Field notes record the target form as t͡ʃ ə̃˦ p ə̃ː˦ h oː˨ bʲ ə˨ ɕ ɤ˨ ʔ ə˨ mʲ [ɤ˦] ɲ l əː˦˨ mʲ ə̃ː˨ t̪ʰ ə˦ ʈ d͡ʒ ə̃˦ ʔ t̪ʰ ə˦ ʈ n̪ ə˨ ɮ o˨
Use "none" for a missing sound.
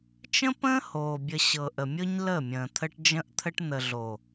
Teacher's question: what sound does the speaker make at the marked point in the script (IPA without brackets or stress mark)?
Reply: ɤ˦